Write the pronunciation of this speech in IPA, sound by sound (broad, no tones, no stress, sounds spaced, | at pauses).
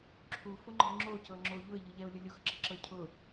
ǁʰ u f ʊ ŋ͡ǃ ə̤ ŋ͡ǁ o c ɤ ŋ͡ǁ o ʎ ʊ ɪ̯ ʎ ɯ ʎ ɛ ʊ̯ lʲ ʊ lʲ ʊ x ǁ ə ǁ ɤ cʰ ʊ